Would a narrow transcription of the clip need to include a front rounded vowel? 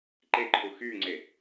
yes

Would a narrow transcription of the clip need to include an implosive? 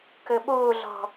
yes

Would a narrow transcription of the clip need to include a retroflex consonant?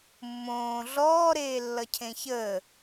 no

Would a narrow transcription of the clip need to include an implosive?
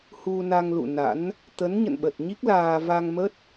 yes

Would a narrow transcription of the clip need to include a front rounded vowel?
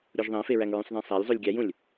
no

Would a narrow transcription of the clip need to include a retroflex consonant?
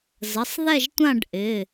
yes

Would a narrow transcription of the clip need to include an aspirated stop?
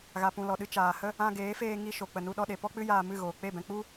no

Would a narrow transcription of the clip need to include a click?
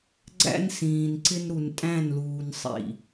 yes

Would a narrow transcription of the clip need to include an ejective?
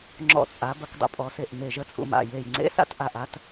yes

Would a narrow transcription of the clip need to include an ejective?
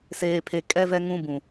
yes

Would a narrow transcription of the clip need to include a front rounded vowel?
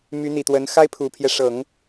yes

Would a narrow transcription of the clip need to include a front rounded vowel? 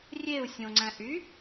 yes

